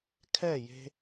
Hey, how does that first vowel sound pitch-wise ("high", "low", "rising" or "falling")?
falling